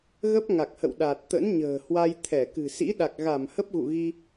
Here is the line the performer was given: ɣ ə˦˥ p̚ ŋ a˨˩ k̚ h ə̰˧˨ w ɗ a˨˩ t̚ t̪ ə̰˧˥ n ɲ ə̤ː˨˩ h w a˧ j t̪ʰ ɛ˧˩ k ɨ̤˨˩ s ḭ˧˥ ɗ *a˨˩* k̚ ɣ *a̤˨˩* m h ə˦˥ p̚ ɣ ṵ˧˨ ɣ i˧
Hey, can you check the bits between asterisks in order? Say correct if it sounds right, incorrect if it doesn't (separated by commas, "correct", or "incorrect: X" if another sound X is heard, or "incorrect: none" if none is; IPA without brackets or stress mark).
correct, incorrect: a˧˩